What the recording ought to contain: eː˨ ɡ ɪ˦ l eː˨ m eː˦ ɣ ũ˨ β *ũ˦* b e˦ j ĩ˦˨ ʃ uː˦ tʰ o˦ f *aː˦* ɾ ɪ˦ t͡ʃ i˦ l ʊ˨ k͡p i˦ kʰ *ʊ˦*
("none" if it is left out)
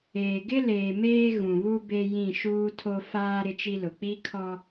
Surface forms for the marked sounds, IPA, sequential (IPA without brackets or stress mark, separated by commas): u˦, aː˦, ɔ˦